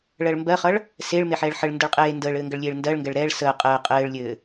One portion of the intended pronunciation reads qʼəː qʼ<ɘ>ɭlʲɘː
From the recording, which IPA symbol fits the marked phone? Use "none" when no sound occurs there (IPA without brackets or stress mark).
ɘː